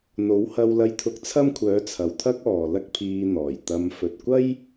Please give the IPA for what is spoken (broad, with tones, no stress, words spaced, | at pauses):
n̪o˨˥whɐ˧wlɐ˧j t̪ʰʊ˧k̚t͡sʰɐ˥mkʷʰœː˨˥t͡sʰɐ˨w t̪ʰɐ˥k̚ɔː˨ lɐ˥k̚pʰiː˧n̪ɔː˨˩jt̪ɐ˧m fɵ˨t̚kʷɐ˥j